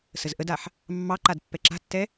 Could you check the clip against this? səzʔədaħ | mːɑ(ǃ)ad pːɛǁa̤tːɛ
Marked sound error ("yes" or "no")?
no